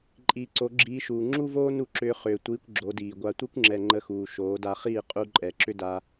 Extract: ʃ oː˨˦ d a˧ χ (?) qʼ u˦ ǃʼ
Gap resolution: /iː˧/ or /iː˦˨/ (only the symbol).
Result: iː˦˨